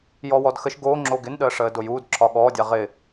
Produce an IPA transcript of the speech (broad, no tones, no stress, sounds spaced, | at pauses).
j ɔ w ɔ d x ə ʃ ɡ o ŋ͡ǁ o ɡ ɪ n ɗ əː ʂ əː d o j uː d ǁʰ ɒ ɠ ɔː dʲ a ʁ ɪ